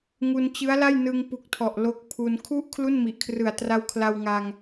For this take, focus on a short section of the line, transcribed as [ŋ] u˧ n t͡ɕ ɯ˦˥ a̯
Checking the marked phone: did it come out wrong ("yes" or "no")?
no